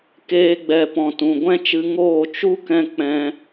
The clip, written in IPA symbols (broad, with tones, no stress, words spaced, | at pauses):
keː˧ɡ͡bɛ˨ pɔ̃˨tũ˨ɡʷɛ̃˦ t͡ʃɨ˧ŋoː˦˨ t͡ʃu˦kɛ̃˧ k͡pɛ̃˧